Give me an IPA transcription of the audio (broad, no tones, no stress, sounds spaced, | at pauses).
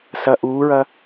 s ɐ ʔ uː ɹ ɐ